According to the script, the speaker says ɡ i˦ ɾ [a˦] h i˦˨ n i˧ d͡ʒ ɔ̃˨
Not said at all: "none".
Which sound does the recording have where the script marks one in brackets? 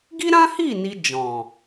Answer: ã˦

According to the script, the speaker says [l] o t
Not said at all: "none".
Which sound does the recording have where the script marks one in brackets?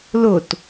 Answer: l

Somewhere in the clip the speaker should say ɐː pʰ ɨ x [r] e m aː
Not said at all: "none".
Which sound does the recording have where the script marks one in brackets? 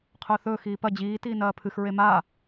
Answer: ɹ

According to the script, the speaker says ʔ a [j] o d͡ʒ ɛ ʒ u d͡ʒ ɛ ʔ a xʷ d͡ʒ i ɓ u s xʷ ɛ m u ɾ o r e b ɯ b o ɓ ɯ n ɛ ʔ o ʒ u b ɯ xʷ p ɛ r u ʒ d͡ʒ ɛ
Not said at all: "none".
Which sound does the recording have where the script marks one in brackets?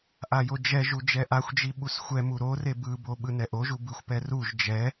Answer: j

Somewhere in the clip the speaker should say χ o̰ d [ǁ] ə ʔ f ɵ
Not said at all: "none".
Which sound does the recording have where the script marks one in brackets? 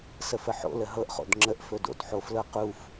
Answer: ŋ͡ǁ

